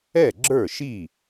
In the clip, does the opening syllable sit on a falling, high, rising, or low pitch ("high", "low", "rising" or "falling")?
falling